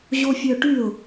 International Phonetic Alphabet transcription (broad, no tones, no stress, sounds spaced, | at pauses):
ʑ o fʲ œ ʈ y ʊ̯